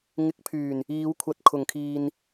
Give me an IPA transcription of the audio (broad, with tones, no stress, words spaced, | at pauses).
ŋɪ˨˥k̚pʰyː˨˩n | iː˨˧wkʷʰɐ˨˥t̚ kʰʊ˨˩ŋkʰiː˨n